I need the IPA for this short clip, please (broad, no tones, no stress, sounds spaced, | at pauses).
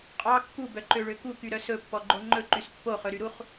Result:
qʼ ɑ kː u b œ ǃ ø ɭ ø k u k y ɾ œ s ɵ pː ɔ ɡ͡ǃ o ŋ͡ǃ ɵ ǃ y s pː o χ ɵ ɾ y ɾ u χ